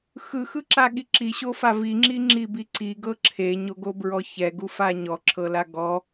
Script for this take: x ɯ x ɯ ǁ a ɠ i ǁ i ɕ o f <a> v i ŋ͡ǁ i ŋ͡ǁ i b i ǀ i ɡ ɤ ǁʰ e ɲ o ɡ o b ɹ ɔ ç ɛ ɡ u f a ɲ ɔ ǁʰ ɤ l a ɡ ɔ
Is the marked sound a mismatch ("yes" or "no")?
no